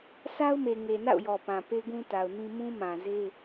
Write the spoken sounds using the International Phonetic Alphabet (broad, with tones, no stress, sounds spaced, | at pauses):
sʰ a˦ ʊ̯ m e˨ ŋ e˨ n a̰˦˨ ʊ̯ j ɔ˨ p ã˨ p e˦ ɡ ũ˦ t a˨ ʊ̯ n ĩ˦ m ũ˦ m ã˨ z e˦